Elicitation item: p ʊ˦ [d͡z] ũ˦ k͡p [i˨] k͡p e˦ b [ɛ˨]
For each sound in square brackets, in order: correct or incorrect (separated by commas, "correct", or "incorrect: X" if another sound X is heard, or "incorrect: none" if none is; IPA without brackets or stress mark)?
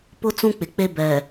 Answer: incorrect: t͡s, incorrect: ɪ˨, correct